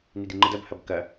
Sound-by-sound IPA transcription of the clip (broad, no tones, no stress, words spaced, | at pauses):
nidiŋ͡ǃəd ɐbhɐb kɐ